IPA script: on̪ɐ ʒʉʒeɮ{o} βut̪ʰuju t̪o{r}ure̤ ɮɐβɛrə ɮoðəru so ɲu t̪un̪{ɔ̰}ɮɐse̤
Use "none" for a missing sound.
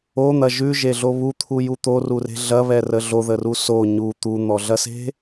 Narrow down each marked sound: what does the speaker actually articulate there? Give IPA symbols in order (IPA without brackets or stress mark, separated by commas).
o, r, ɔ